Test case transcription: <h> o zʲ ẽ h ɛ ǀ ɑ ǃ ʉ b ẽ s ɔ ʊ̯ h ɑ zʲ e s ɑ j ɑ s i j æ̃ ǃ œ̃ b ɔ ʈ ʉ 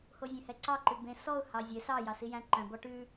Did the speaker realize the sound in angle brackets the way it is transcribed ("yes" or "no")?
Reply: yes